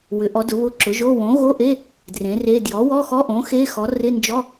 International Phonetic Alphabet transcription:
w ʏ˩˥ ʔ ɔ˩˥ d ʊ˩˥ β ʊ˧˥˧ ǁ ʊ˩˥ ʒ o˧˥˧ w õ˩˥ ɣ o˧˥˧ ʔ e˧˥˧ | d r ẽ˩˥ r e˧˥˧ d j ɔ˩˥ w ɔ˧˥˧ x ɔ˧˥˧ ʔ õ˩˥ x e˧˥˧ x ɔ˩˥ r ɪ˧˥˧ n d͡ʒ ɔ˧˥˧

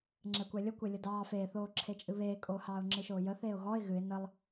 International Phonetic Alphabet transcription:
ŋ͡ǁ ɛ kʷ ɛ lʲ ə kʷ e lʲ ə d ɑː f eː θ oː ǁʰ e t͡ʃʼ ɨ β eː kʼ oː h ɑː ʊ̯ ŋ͡ǁ ɨ ʃ oː j ə θ eː ʊ̯ ɣ ɔ ɪ̯ ɣ ɨ ɪ̯ n ə lˠ

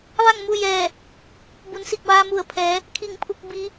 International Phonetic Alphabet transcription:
ʋ a˥˨ ŋ m u˥˨ j ɛː˧˩ | b u˩˧ n s i˧˩ k̚ ʋ aː˧ m u˧˩ ə̯ pʰ ɛː˩˧ | kʰ i˧˩ ŋ pʰ u˧ k̚ b i˧˥

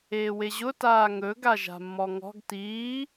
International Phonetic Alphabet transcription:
eː w e ʑ ʊ t aː ŋ ɵ ɡ a ʒ a̤ mː ɔ ŋ ɔ̤ ɡ t iː

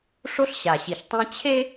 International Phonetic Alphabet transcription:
ʂ o˦ ɬ ɕ a˨ ɕ i˨ ɬ tˤ ẽ˦ t͡ɕʰ e˦

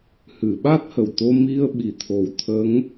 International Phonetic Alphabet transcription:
h ɨ˨˩˨ ɓ a˦˥ t̚ h ə˨˩ w t̪ o˧ m i˧ ə̯ ɓ i˨˩ t̪ʰ o˨˩˦ w t̪ʰ ə˧˥ ŋ

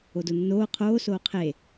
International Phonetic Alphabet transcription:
o d o nː oː qʰ oː s oː qʰ e

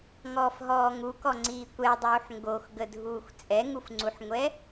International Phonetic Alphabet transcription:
ŋ ɔː f ɦ ɔː ŋ u k ɔ ŋ͡ǀ iː kʷ ɛ dˤ uː ħ ŋ ɡ o x ɡ ə dʱ uː xʷ t͡sʼ ɛ ŋ u f ŋ͡ǀ u ħ ŋʷ ɛ

